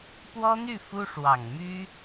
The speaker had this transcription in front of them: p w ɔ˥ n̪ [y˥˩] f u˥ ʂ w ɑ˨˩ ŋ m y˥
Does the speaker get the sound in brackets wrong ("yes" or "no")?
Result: no